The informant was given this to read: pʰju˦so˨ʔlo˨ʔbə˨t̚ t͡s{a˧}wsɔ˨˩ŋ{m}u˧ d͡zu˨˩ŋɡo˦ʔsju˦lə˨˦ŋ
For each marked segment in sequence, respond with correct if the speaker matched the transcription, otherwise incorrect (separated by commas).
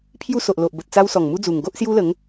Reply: correct, correct